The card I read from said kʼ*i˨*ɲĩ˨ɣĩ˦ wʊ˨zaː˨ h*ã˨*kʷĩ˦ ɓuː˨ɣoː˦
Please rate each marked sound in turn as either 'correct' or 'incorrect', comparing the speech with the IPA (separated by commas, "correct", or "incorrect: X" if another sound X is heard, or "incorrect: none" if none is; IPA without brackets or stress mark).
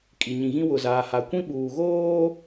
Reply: correct, incorrect: a˨